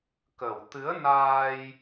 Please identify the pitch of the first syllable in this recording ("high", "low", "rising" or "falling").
low